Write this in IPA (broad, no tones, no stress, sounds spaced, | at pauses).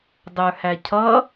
dˤ ə˞ h æ cʰ ʌ